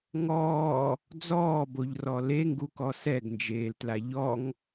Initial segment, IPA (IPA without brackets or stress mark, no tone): ŋ